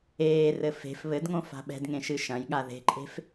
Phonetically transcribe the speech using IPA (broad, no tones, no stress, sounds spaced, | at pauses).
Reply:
eː r ɘ f e̤ f β ɘ d ŋ õ f a̤ ɓ ɛ̤ d ŋ ẽ ʃ ɨ ʃ ɐ̃ j ɠ a ð e̤ ǃʼ e̤ f